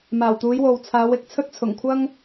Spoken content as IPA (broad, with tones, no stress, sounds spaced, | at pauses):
m aː˨˩ w t̪ uː˨˧ j w o˨ w t͡sʰ aː˨˧ w ɪ˧ k̚ t͡sʰ ɵ˥ t̚ t͡sʰ ʊ˨˩ ŋ kʷʰ ɐ˥ ŋ